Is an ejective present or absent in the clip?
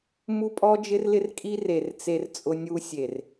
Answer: present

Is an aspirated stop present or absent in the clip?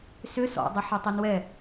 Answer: absent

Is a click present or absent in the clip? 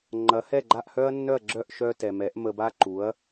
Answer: present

